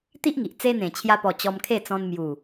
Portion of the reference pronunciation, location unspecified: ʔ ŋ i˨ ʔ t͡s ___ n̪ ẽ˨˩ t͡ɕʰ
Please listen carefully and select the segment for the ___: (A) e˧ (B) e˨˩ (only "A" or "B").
A